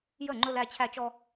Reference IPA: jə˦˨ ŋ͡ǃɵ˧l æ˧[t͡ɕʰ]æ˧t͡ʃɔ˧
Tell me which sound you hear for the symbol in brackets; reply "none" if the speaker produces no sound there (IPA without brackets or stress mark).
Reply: t͡ɕʰ